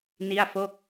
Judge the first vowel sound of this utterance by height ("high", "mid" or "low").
high